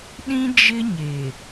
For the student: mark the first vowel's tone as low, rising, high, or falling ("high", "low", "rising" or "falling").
high